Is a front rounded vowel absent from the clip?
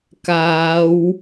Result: yes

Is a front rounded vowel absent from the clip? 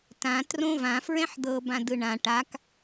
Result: yes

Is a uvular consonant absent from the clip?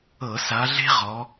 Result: no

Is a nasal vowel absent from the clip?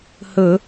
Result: yes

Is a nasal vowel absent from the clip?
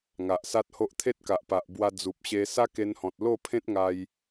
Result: no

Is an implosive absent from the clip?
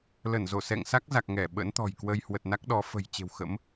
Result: no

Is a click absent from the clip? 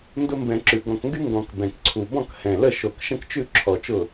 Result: no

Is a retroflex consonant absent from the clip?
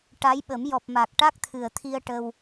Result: no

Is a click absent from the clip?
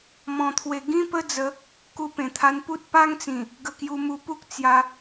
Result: yes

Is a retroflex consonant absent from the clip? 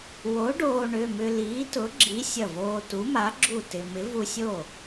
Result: no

